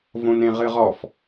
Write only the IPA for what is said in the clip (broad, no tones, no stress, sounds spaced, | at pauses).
v õ n ẽ ʁ ɨ ʁ ɔ f